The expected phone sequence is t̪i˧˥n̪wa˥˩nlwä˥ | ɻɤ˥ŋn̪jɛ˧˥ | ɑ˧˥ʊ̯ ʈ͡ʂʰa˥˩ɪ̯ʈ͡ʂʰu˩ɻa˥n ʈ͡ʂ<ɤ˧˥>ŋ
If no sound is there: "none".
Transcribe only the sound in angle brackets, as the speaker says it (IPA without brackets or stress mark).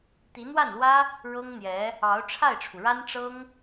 ɤ˥